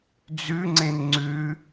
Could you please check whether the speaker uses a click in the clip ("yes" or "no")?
yes